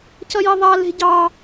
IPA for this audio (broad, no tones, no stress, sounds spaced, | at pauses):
c ʌ j e ðˤ a l e̤ ɟ ɑ